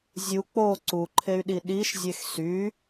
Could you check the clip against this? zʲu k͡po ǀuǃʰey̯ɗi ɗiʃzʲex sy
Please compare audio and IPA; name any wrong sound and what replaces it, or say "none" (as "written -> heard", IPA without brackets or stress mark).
none